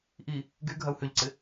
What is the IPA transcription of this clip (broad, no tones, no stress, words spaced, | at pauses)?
ʔi | ɡy ɡʱɐu̯hʏʎǀɪ